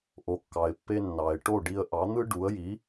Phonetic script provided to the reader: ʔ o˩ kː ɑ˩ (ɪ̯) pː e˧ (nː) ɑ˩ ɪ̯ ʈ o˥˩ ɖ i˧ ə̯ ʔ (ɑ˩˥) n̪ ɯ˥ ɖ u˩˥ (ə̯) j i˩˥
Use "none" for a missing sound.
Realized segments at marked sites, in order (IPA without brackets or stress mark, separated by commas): ɪ̯, nː, ɑ˩˥, ə̯